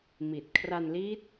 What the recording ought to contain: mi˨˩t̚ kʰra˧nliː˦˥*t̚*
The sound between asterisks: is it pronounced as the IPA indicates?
yes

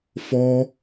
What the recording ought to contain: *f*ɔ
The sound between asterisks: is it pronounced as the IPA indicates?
yes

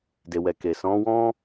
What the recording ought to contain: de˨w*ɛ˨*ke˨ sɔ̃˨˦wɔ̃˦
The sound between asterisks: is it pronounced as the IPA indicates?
yes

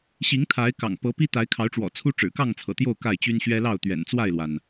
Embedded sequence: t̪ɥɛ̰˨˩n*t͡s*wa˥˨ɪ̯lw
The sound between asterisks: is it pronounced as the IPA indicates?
yes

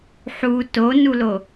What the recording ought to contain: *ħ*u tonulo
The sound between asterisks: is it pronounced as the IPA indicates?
yes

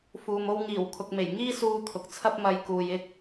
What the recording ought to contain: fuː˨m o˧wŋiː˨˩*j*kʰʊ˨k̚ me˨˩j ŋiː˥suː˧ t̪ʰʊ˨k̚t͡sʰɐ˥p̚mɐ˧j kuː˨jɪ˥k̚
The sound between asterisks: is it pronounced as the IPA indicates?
no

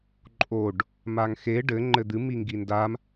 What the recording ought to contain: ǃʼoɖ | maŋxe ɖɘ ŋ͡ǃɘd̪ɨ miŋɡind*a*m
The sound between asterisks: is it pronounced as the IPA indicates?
yes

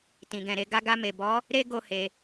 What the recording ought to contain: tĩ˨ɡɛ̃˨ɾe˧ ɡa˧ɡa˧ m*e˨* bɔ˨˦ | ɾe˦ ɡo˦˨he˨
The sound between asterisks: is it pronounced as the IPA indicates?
yes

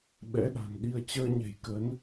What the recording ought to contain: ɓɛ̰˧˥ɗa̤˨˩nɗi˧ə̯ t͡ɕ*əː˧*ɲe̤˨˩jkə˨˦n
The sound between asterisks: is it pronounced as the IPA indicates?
yes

